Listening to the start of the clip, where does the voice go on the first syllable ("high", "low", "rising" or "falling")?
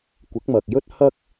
rising